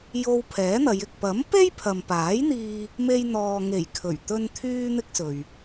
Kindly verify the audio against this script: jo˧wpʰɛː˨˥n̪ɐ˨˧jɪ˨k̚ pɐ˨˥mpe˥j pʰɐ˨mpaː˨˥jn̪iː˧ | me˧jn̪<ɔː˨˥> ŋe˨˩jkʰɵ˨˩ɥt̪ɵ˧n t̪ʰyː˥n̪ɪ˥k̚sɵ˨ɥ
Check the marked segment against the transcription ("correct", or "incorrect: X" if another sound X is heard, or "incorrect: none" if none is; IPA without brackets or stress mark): incorrect: ɔː˨